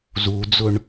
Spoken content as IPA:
zud͡zʊɳ

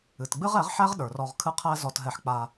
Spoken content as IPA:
ɨ˨tɡ͡bɨ˦ʁɛ˨˦ʁħæ˦ʁ ɗə˞˨rɔ˧ʁ kʰɨ˦qʰæ˦ zɔ˧tɦɛ˧ħk͡pa˧

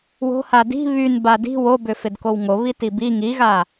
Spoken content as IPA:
wo̤ hadi̤ βyn badi̤ wobʏ fɪdkowŋoβi tibi ŋiɣa

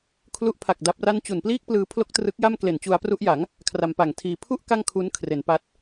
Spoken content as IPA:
kʰlu˦˥ʔpʰa˨˩k̚ da˦˥p̚ra˥˩n t͡ɕu˨˩npliː˥˩k̚plɯː˧ pʰlo˥˩k̚trɯ˦˥k̚ja˥˩m kle˨˩nt͡ɕu˧a̯pru˦˥ʔja˩˦ŋ | kʰra˧mpa˨˩ŋtʰiː˧ pʰu˥˩ʔ ka˥˩ŋkʰu˦˥nkʰre˩˦npa˦˥t̚

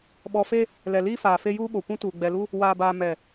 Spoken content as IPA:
ɓɔ˨fe˦ | lɛ˨liː˦faː˨fe˦ juː˦ɓo˨kʷũ˦tuː˨ ɡ͡bɛ˨lu˦ | waː˨baː˨ mɛ˨

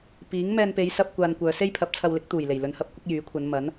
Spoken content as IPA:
piː˨˥ŋ mɛː˧npe˨˧jsɐ˧p̚ kʷaː˧nkʷœː˨˧ se˥jpʰɐ˨˥p̚t͡sʰɐ˧wlɪ˨˥k̚ t̪uː˨˩j le˨˩jlɵ˨˧nhɐ˧p̚kʷɪ˥k̚ jyː˨˥kʷʰɐ˨˧nmɐ˨˥n

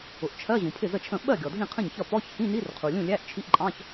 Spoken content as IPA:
ʊ˩ʔt͡ʃʰɜ˧˥˧ ʑũ˩pʰɪ˥˩zə˥˩t͡ʃʰə̃˥˩ ɓɜ˥˩ ɡʲɔ˩dʱĩ˥˩qʰə̃˥˩ɲçʌ˥˩ pɔ˧˥˧ç hĩ˧˥˧ni˧˥˧rqʰu˩lʲũ˥˩ lʲæ˧˥˧ʔt͡ʃʰi˧˥˧ʔǃʼɑ̃˧˥˧ç

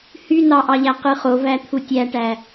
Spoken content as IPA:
hynɑʔɑʎæ qɯχovæ t̪ʰutʲæʈæ

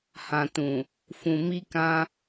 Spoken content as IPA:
hã˨tũ˨ | fũ˨ mi˧kã˧

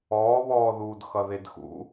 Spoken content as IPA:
ɔːβɔːðuːd xʌðedxṵ

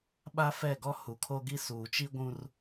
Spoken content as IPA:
ɓa˦ fɛ˦˨ɡɔ˦ hu˨kʰo˦ɡi˦ suː˨t͡ʃi˦ɡʷũ˦r

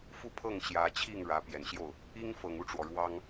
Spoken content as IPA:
fu˥˧pʰɤ˥˩ŋ ɕjä˧˥ t͡ɕʰi˥˩ŋ ɻä˧˥ pjɛ˨˩nɕjo˥˩ʊ̯ | i˥ŋfɤ˨˩ŋu˥˩ʈ͡ʂwɔ˩ ɻwɑ˥ŋ

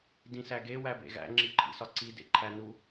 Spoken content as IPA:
dĩsæɡe wæbḛɣæ̰ ŋ͡ǁiǃʰḭsɒǀi dḛǃʰænu

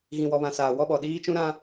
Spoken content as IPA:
ɣĩ˨wɔ˨βã˨ saː˨wɔ˦ɓɔ˨ ɗiː˦t͡ʃũ˦ ɾã˦

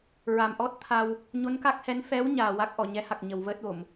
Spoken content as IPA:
ɹa˨˩mʔɔ˦˥t̚t̪ʰa˧w | ɲo˧˥nka˦˥k̚hɛ˧˥n fɛ˧˥w ɲaː˨˩wa˦˥k̚ʔɔ˨˩˨ɲɛ˧˥ ha˨˩k̚ɲə˨˩w vəː˦˥t̚wo˨˩˨m

